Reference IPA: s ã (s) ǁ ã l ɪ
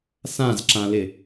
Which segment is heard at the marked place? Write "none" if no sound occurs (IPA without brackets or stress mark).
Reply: z